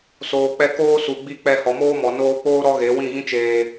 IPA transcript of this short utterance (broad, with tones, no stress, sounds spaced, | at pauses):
s oː˨ k͡p ɛ˧ k oː˦ s u˨ ɡ͡b i˧ k͡p ɛ˧ h ɔ˨ m oː˦ m ɔ˨ n oː˧ k͡p oː˦ ɾ ɔ˦ ɣ e˨˦ w ĩ˦˨ ɣ ĩ˦ t͡ʃ eː˧